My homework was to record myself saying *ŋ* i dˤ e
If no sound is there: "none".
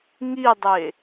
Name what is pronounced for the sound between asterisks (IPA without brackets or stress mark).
ŋ